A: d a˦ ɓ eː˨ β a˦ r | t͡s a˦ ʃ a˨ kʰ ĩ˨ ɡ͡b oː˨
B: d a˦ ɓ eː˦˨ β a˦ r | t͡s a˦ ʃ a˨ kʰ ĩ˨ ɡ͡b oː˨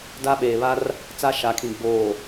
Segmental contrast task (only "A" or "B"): A